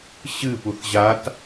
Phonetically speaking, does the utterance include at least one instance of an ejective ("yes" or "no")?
no